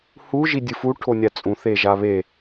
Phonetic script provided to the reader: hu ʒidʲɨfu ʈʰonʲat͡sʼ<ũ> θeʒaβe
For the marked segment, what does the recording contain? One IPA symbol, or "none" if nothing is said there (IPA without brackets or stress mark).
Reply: ũ